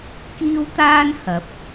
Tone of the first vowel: high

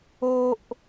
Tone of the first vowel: high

